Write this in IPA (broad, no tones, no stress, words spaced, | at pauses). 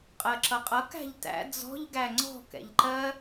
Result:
qʼɜǁʌqʼʌ kæ̤ʎtæ̰ d͡zɔ̤ʎ ɡæŋ͡ǀɔ̤ kɛ̰ʎǃɜ